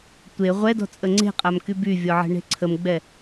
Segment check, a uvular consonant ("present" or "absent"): present